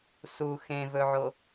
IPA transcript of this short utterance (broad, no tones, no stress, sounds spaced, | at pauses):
s u x ẽ v ɵ ʕ o